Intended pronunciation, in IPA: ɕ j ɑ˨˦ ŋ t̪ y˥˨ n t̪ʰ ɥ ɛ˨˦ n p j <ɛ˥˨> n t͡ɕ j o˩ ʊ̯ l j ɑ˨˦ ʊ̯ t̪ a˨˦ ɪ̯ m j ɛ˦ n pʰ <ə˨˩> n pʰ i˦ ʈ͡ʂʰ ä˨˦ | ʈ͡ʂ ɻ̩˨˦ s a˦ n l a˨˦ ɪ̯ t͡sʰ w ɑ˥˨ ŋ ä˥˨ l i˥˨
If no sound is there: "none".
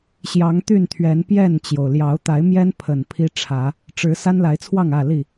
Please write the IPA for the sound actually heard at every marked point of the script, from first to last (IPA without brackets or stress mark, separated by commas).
ɛ˥˨, ə˨˩